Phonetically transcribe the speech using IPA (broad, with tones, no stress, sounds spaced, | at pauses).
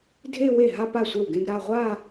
dʱ e˥˧ w e˥˩ ɦ a˥˧ p a˥˩ sʷ e˥˩ w ɡ ẽ˥˧ ɡ ɾ a˥˧ ʁʷ a˥˧